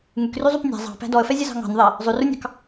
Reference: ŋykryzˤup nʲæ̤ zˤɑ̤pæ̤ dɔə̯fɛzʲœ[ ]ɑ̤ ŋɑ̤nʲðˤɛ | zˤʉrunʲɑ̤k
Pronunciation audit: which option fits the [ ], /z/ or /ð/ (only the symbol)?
z